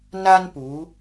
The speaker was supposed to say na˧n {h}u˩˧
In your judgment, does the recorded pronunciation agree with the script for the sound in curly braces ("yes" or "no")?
no